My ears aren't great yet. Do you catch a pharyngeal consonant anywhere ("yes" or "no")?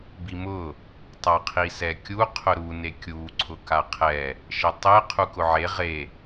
yes